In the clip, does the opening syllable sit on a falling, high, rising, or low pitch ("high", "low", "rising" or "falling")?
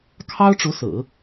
high